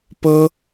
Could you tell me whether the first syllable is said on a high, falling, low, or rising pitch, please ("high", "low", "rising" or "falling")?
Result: high